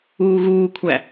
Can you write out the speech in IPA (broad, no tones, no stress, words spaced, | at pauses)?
uːɣuːkʷʰæ